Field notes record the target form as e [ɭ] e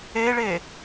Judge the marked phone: correct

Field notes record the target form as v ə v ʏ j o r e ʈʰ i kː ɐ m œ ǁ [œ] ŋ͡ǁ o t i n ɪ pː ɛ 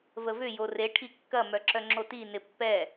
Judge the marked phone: correct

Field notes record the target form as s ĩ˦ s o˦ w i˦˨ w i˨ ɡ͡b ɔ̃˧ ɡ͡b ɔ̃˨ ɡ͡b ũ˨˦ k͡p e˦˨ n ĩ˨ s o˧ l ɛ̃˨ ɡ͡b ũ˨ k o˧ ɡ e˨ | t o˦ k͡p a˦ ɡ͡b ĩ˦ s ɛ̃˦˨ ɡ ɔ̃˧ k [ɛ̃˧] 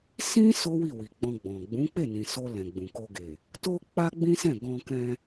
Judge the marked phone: correct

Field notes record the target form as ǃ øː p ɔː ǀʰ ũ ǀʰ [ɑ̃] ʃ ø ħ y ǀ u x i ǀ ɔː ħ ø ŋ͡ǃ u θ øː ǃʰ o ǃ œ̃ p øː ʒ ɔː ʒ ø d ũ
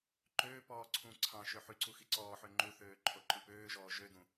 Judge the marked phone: correct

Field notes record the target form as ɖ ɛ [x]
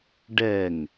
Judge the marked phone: incorrect: ŋ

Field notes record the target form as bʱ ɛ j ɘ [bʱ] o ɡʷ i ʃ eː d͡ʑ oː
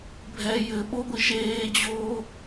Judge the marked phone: incorrect: ɓ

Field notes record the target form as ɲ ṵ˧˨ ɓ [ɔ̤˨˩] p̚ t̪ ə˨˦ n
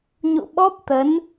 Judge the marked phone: incorrect: ɔ˦˥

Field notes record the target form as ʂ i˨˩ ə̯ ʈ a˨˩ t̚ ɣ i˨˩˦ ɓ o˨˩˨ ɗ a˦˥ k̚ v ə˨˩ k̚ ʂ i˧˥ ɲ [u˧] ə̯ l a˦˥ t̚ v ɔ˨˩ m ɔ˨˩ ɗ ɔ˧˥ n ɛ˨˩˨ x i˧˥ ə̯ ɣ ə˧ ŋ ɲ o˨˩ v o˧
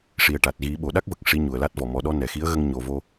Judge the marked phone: incorrect: u˨˩˨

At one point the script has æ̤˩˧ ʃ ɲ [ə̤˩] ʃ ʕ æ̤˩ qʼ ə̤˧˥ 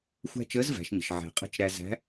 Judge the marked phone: correct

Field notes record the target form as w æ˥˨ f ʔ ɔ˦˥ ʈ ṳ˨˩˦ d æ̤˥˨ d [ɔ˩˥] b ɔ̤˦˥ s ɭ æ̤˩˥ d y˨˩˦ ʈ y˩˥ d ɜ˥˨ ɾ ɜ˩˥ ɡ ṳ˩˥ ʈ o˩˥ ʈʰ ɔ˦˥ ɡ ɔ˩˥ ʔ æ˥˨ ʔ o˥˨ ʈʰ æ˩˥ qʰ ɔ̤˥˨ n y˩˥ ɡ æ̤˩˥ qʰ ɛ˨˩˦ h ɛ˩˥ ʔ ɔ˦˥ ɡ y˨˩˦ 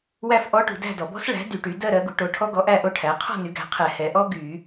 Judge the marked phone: incorrect: ɔ˨˩˦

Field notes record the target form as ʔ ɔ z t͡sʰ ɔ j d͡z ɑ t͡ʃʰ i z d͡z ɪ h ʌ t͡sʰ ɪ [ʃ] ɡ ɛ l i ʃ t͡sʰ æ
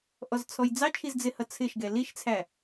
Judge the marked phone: correct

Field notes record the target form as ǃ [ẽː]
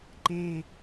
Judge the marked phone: correct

